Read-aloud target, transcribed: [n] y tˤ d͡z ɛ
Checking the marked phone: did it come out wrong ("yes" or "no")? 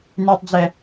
no